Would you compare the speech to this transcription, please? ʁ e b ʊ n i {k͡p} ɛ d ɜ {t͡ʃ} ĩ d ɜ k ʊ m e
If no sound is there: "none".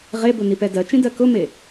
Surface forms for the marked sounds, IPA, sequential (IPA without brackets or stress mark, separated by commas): p, t͡ʃ